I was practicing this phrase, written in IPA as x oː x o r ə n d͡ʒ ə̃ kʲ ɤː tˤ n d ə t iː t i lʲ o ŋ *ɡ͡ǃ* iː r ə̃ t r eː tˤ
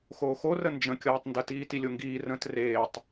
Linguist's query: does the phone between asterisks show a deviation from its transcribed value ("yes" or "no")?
yes